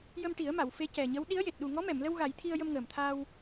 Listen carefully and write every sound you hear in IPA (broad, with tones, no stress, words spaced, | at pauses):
jə˧mʈi˨˩˦ə̯ma˨˩˨w fe˧˥cɛ˨˩ɲə˧˥w ɗi˧˥ə̯je˨˩t̚ ɗu˨˩ŋɔ˧˥mɛ˨˩˨mlə˧w ɣa˨˩˦jt̪ʰi˧ə̯ jə˧mŋəː˨˩mt̪ʰaː˧w